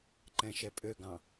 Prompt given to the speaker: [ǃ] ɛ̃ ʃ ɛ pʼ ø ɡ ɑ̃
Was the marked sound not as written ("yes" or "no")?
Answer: no